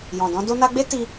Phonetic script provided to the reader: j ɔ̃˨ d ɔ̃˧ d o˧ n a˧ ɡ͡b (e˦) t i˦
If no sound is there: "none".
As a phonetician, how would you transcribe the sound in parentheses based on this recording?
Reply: e˦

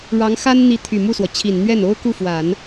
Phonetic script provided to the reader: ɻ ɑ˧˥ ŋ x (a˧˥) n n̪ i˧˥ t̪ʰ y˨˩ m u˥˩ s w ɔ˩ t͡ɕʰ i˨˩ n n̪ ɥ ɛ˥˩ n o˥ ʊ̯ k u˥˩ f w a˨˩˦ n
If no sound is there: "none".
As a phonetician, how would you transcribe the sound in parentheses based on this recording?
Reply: a˥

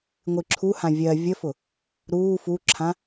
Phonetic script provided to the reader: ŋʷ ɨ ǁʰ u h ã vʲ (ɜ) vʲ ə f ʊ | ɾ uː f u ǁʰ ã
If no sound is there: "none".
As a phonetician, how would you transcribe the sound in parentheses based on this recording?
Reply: ɜ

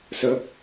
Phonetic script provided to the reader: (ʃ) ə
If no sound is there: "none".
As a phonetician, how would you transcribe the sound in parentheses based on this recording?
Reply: s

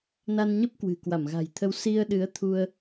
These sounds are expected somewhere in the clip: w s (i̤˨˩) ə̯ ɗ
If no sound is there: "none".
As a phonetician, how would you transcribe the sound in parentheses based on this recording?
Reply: i˧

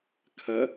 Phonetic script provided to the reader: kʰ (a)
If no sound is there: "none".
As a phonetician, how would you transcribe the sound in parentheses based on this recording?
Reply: ɐ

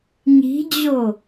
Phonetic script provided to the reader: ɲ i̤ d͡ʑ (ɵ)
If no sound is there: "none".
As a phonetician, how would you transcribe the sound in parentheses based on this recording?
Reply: o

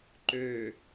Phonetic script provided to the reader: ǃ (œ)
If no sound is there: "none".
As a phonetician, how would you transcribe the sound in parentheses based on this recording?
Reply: ø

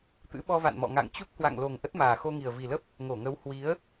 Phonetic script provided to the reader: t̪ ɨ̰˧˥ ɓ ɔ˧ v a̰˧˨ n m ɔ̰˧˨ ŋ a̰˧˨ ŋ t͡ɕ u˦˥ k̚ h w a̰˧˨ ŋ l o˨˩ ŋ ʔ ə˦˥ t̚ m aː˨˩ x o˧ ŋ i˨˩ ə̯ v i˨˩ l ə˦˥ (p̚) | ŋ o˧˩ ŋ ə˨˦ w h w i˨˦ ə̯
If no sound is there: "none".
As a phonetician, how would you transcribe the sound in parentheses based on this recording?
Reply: p̚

